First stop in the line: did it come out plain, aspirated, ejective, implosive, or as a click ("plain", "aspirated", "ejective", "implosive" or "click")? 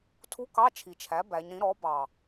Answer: aspirated